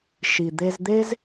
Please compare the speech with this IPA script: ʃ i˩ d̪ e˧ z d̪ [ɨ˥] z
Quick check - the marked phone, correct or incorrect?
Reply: incorrect